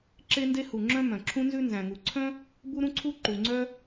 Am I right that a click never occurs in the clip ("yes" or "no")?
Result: no